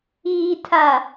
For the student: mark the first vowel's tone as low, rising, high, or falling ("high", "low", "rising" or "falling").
low